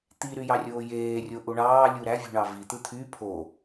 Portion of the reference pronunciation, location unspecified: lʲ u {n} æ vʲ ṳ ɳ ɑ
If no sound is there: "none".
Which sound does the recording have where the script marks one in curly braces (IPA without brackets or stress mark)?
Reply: ɾ